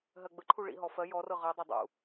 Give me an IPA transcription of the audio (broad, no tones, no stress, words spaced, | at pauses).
ɦɜɡ͡bəǃʰu ɭḭɦɔ fɜ jɔrɤ ʁɜdˤɛ dˤṵ